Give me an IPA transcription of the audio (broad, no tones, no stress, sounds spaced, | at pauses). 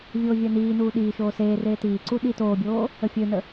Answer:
vʲ oː vʲ ɜ n iː n uː ɗ iː ʃ oː s eː r eː t iː ǀ u ɗ i t oː bʲ oː | ə fʲ ø n ə